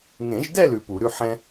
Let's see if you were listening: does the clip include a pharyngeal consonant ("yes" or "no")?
yes